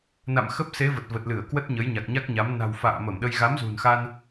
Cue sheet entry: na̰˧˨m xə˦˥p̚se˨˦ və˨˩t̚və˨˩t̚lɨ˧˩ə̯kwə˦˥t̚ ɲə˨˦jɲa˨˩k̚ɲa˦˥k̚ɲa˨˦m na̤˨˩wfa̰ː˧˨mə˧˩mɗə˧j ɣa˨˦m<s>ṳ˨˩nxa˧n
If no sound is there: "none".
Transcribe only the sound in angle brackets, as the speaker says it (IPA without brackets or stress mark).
z